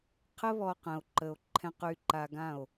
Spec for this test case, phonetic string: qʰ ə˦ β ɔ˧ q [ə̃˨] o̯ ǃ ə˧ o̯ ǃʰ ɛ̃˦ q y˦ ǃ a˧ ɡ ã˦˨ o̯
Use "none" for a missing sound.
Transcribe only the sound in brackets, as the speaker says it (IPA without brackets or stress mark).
ə̃˨